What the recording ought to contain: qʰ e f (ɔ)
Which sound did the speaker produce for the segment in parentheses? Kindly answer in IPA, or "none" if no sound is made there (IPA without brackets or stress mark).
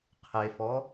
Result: ɔ